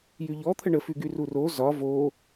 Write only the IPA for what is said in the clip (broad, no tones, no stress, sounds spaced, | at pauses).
j y ʎ ɔ t̪ʰ ə ɳ ə f y ɡ y r u r o z ɒ v o